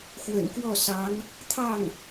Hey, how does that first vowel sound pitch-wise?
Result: low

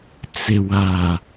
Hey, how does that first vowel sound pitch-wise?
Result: low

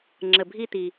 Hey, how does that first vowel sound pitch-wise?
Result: low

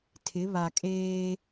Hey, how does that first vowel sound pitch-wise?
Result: rising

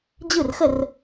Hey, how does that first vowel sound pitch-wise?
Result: falling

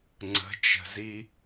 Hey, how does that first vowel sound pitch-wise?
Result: rising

